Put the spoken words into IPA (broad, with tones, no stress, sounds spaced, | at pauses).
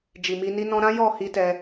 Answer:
d͡ʒ i˨ m i˧ n i˦ n ɔ̃˦ ɾ ã˦ j ɔ˦˨ h i˧ t ɛ˧